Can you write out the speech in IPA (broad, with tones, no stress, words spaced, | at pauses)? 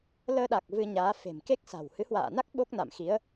ləː˧ɗa˨˩k̚ vɨ˧ɲaː˨˦ fe̤˨˩mke˦˥k̚sa̤˨˩w hɨ˨˦hwa̰ː˧˨na˦˥k̚ ɓo˦˥k̚na̰˧˨mxi˨˦ə̯